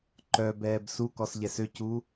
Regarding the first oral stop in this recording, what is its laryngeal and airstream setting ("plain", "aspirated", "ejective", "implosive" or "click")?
click